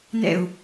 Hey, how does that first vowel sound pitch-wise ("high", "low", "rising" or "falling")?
low